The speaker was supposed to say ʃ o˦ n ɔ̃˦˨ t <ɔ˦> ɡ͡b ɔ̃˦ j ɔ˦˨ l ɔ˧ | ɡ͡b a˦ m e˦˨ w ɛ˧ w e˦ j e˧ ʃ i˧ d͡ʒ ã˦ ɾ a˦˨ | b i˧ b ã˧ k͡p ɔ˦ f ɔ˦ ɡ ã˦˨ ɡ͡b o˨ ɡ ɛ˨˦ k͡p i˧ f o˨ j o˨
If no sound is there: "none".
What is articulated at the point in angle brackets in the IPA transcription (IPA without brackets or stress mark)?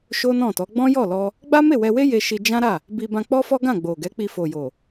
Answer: ɔ˨˦